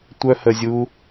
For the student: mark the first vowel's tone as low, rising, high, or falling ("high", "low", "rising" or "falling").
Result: high